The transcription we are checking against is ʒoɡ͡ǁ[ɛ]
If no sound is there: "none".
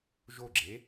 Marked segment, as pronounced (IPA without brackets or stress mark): e